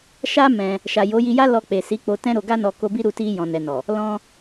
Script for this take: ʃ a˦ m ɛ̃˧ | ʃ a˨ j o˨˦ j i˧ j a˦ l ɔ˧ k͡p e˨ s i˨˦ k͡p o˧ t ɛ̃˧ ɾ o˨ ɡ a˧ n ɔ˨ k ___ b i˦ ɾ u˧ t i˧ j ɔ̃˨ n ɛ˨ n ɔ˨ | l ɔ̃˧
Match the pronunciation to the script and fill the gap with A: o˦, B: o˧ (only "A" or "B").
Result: B